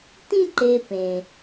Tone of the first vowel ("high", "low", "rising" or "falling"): high